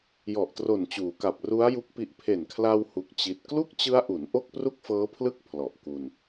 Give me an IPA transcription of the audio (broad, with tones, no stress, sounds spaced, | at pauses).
j ɔ˨˩ ʔ t r o˨˩ n t͡ɕ uː˩˦ k a˨˩ p̚ r u˦˥ a̯ j u˦˥ k̚ p i˦˥ ʔ pʰ e˨˩ n kʰ l a˧ w h u˦˥ k̚ t͡ɕ i˦˥ t̚ k l u˥˩ k̚ t͡ɕ ɯ˦˥ a̯ ʔ u˩˦ n ʔ o˥˩ k̚ p r u˥˩ k̚ f ɤː˦˥ pʰ l ɯ˥˩ k̚ pʰ l ɔ˨˩ ʔ k u˧ n